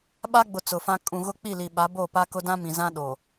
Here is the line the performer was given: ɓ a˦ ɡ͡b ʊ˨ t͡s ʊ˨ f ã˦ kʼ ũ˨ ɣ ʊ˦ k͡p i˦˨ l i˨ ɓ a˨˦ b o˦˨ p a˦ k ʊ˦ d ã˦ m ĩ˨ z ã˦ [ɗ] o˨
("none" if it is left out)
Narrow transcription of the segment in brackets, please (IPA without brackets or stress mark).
ɗ